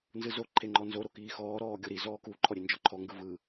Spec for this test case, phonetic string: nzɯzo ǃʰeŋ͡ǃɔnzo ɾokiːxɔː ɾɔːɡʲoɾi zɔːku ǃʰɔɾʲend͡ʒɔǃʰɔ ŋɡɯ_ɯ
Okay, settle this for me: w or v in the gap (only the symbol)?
v